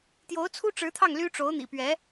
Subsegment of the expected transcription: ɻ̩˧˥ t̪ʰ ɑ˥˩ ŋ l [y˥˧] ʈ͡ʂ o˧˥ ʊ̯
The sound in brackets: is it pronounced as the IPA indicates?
no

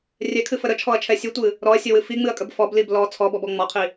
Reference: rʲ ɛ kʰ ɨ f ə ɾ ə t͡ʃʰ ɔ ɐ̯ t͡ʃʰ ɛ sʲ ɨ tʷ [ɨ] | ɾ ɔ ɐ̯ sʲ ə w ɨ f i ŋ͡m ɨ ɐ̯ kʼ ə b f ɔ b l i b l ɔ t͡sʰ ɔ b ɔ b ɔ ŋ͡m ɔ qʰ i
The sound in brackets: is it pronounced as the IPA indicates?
yes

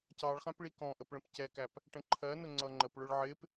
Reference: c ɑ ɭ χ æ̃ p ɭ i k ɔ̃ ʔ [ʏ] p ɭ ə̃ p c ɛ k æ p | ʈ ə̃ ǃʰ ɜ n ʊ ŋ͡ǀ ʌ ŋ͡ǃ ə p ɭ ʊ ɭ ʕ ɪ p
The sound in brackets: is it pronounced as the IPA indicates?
no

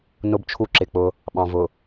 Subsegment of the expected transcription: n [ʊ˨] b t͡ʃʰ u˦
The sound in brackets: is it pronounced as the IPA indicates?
no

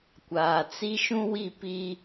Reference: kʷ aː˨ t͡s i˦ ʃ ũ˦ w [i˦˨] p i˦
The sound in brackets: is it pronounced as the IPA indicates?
yes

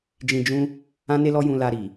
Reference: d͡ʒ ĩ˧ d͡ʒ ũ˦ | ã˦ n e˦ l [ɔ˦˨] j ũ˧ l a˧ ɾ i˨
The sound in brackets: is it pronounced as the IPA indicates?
no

